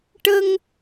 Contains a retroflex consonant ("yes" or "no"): yes